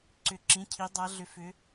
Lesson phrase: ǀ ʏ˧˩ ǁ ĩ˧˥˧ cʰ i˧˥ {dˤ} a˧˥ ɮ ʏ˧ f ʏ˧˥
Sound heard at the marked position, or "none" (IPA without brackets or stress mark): dˤ